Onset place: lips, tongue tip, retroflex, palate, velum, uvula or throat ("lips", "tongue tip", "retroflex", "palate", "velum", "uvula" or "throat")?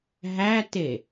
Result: throat